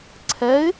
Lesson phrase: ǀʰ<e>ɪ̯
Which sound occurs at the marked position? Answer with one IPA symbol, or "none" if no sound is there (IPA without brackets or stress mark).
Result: ɛ